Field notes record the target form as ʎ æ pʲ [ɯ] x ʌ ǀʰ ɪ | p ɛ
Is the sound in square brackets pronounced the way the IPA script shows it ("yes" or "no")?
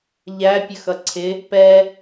no